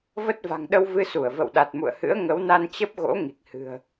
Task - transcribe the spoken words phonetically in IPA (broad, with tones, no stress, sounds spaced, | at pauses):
v ə˦˥ t̚ v a̤˨˩ ŋ ɗ ə˧ w v ɨ˧ s u˧˩ ə̯ v ə̰˧˨ w ɗ a˨˩ t̚ m ṵ˧˨ ə̯ h ɨ̰˧˥ ə̯ ŋ ə˨˦ w n a˧ n t͡ɕ ə˦˥ p̚ ɣ o̰˧˥ ŋ i˨˩ k̚ h ɨ̤˨˩ ə̯